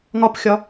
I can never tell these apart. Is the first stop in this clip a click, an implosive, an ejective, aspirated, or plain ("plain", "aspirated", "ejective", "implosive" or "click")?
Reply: plain